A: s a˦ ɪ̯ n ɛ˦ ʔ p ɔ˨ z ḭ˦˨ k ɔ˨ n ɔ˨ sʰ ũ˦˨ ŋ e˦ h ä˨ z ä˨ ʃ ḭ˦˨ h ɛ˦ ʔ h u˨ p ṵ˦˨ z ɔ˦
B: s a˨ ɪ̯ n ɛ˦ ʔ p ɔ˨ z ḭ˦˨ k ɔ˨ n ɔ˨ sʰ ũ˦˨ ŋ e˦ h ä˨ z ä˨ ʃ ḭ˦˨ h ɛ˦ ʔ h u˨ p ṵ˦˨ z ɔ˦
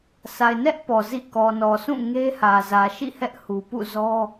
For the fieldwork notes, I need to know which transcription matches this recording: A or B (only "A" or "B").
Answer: B